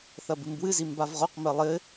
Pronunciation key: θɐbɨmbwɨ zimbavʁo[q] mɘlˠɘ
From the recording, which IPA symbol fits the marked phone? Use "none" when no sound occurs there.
q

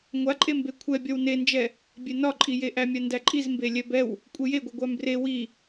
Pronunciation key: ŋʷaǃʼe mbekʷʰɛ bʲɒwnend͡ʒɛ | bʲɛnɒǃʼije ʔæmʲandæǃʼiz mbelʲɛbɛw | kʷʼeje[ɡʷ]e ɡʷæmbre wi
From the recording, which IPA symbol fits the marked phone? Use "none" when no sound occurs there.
ɡʷ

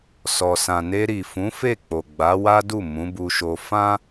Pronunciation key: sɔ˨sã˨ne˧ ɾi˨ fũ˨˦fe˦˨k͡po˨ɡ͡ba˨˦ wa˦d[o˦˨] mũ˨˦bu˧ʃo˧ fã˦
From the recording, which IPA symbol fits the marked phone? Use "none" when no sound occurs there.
u˦˨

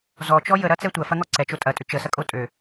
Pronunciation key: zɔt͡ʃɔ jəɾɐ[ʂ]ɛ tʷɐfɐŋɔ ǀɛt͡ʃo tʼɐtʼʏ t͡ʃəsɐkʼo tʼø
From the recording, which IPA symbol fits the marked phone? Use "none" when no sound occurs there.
t͡s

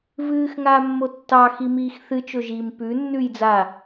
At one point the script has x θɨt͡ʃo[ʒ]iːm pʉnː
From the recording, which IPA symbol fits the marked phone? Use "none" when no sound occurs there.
ʒ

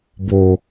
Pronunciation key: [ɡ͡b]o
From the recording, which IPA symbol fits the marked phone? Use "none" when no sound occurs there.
b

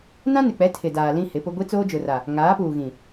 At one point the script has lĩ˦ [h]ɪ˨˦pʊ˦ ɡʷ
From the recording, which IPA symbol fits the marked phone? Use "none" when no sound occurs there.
h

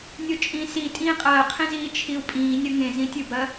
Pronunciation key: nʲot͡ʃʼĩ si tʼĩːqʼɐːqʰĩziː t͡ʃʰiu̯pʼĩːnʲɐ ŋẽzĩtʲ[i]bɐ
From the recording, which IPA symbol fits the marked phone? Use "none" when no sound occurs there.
ɨ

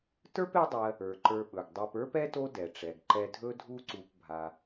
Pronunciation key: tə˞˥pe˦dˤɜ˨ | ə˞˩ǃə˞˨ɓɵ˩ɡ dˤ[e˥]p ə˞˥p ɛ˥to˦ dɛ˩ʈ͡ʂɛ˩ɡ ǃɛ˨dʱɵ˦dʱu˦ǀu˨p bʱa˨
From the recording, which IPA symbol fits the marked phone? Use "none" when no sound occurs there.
e˨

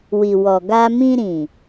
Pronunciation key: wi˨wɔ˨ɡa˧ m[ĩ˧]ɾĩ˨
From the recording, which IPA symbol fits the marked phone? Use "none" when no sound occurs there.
ĩ˧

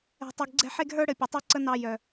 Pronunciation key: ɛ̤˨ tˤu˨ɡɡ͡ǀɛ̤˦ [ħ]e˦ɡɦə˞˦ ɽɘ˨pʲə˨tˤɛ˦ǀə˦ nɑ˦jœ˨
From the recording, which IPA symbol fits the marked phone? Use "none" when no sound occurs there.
ħ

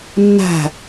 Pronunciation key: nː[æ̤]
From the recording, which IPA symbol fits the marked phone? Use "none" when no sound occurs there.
æ̤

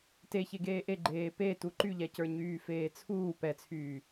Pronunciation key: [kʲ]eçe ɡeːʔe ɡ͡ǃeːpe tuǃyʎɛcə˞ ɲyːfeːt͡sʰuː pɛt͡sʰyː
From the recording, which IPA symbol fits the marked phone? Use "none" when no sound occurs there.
t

